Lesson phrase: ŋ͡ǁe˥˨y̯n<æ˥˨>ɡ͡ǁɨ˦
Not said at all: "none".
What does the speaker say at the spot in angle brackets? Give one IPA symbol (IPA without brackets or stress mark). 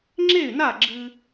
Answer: a˥˨